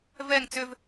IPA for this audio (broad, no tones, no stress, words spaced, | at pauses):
vɛŋ t͡sʏv